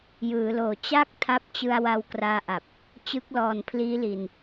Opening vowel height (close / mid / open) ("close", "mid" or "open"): close